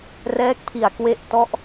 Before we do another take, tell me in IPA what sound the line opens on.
r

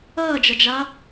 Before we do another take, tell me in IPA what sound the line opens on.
ʌː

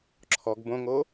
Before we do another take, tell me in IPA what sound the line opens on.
ǁʰ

